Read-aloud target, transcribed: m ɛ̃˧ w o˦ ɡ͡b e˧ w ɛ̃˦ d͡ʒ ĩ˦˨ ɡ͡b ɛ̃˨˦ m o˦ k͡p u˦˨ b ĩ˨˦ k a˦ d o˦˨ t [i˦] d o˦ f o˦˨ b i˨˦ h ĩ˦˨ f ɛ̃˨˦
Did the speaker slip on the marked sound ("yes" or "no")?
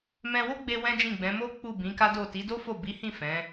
yes